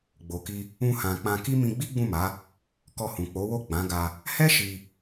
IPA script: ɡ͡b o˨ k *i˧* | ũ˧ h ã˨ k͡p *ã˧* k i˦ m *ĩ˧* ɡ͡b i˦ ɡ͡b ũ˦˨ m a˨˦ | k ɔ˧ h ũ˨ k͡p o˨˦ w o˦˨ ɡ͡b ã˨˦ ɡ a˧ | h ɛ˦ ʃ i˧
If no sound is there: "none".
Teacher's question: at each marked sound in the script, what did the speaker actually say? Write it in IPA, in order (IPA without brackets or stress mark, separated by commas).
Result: i˧, ã˧, ĩ˧